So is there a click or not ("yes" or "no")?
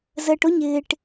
no